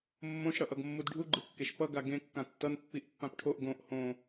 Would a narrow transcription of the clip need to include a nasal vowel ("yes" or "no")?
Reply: yes